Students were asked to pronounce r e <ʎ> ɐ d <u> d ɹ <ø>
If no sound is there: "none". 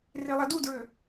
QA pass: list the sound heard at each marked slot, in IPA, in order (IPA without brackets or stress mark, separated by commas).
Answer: lˠ, u, ø